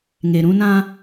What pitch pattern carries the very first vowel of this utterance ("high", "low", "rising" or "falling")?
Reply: low